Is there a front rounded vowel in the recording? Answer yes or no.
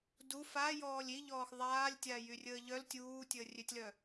yes